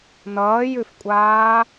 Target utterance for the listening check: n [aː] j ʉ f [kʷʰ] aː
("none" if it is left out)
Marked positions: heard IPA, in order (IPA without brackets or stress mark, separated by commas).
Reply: ʌː, kʷʼ